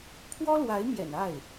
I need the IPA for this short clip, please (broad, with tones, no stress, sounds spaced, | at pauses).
pʰ w ɔ˥ l w a˧˥ ɪ̯ m j ɛ̰˨˩ n a˥˩ ɪ̯